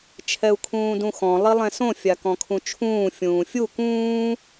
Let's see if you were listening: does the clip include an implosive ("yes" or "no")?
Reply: no